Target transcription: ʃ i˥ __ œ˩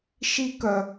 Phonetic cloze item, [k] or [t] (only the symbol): k